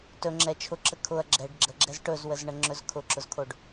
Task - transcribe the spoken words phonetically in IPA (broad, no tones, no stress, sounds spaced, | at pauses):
t ɵ ŋ͡ǁ ɛ t͡ʃʰ ʊ ǁ ə kʰ ʊ ɐ̯ ɡ͡ǁ ɛ ɖ ɡ͡ǁ ə ɡ͡ǁ ɛ z ʈ ɵ z w ə z ɳ ə ŋ͡ǁ ɵ z kʰ ʊ ǁ ʊ z kʰ o ɖ